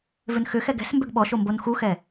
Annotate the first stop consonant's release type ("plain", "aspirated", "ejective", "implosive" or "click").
plain